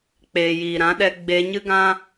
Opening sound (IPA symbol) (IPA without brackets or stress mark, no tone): k͡p